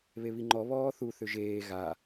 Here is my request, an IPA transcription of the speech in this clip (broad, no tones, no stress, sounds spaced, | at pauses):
β e β i ŋ͡ǃ ɔ β ɔː θ u θ ʏ ʒ eː ɣ a